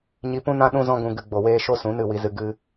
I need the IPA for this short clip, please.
ɲi˧pũ˦nã˦ ɗũ˦zɔ̃˦ɡũ˧ ɡɨ˧ ɡ͡bo˨weː˧ ʃo˦ sũ˨˦nɨ˦˨wi˧zɨ˧ ɡɨ˦

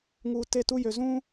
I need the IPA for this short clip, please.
ŋuː˨ te˦˨tu˦ jø˨zũː˦

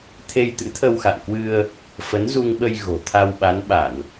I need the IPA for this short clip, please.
t̪ʰe˧j t̪ɨ̰˧˥t̪ʰə˧wxa̰˧˨nkwɨ˧ə̯ | fə˨˦nzu˧ŋɓə˧j ɣo̤˨˩ t̪ʰa˧wɓa˨˦nɓa˧˩˨n

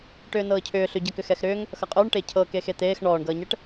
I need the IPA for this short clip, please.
ʈʏːnɤːcʰʏː ɬʏɟʌkʏ xɛxɾʏːŋ | xʌqʼʏːɳ ʈecʰɤ kexet̪eːx ɳɔːɳɡʌːɲɛʈ

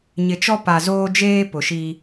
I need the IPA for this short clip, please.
ɲɪ˨t͡ʃɔ˦ pa˨zoː˦d͡ʒeː˦ pʊ˨ʃi˦

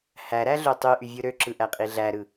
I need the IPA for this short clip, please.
hæɾæɮø tˤyʔyvʲɯ ɾøǁɯʔæqʼi ɮæɾɯ

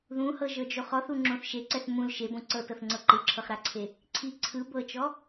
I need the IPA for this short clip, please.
ðũhɤʒɤd͡ʒoχ ɔθuŋ͡ǁõθ ʃeǀɛθ mũl ʃebõ ǀɤtɤθŋ͡ǀɤ ǃɯǁʰɤχɾaǀʰe | ǀʰi ǀʰɯ bɤt͡ʃɔ

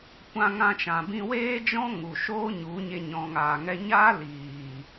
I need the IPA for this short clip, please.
kʷã˧ŋã˧t͡ʃã˨bĩ˧ weː˦d͡ʒɔ̃˦ ŋu˨ ʃoː˦ɲu˨˦ ɲe˨ ɲɔ̃˨ŋaː˨ŋɛ˧ ɲaː˦liː˨

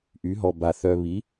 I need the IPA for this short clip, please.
ʔy˩˥ɦɔ˨ba˨ θœ˨βi˩˥

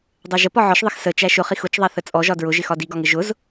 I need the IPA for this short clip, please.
dˤæʒə pɒʕɒʃðˤɪx sət͡ʃæ ʃʊχix ʊt͡ʃðˤæ θət͡sʼɔʒɒ dɹʊʒɪxɒ diɡɒŋɪ ʒʊz

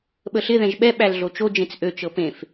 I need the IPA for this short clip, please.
ɓəɬɪ ðɛ̃ʒɓɛ ɓælɮot͡ʃo d͡ʒẽt͡sʔøt͡ʃɤ pẽf

